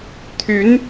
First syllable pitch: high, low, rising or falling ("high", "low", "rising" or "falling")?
rising